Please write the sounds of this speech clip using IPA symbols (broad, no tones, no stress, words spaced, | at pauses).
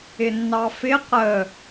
ɪnːɑfɪ qə